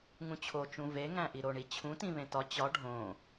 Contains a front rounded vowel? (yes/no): no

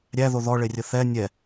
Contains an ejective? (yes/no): no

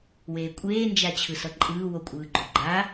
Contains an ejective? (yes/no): yes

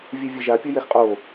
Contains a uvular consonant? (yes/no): yes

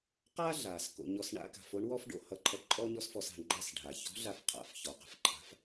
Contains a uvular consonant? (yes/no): yes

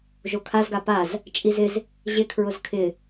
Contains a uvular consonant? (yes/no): no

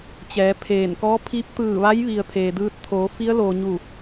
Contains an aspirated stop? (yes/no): yes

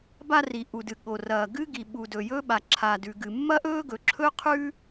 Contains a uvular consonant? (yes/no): yes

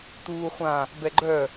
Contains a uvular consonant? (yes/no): yes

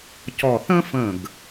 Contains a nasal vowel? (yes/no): yes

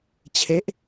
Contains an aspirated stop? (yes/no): yes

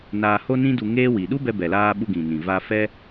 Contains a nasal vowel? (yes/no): yes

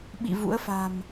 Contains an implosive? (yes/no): yes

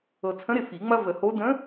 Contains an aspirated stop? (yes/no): yes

